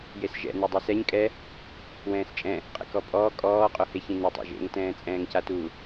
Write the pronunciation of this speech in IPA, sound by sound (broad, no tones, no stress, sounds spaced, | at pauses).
j e s ʒ ɛ̰ n e dˤ e s ɛ ɲ kʼ ɛ | w ɛ̃ː s t͡ʃʼ ɛ̃ | qʼ ɛ̰ k ɔ pʼ ɔː kʼ ɔː qʼ o h e ç ĩ n u tˤ ḛ ʒ ḛ ŋ t ɛ̃ː t͡sʼ ɛ̃ː ŋ c a t u